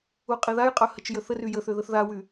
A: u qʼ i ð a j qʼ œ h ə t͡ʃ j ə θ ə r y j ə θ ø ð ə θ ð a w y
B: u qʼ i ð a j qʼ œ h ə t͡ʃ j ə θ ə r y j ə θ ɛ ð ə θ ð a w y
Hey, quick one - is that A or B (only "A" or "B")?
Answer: A